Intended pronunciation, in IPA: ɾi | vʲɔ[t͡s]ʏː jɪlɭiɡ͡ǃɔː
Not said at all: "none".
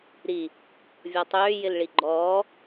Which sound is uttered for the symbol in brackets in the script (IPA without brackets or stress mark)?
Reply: tˤ